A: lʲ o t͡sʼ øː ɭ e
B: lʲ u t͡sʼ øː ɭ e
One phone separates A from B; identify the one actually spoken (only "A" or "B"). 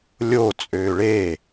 A